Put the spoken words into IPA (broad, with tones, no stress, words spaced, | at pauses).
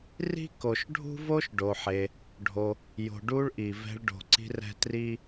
ri̤˥ko˨ʃɖʱṳ˥ vo˦ʃɖo˨ħe˨ | ɖʱo˨ | jo̤˨ɖu˦ɭ ʔi˩vɛ̤˦ɭ ɖo̤˨ǀi̤˦rɛ̤˦ tri˥